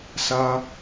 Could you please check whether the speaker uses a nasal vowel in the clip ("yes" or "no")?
no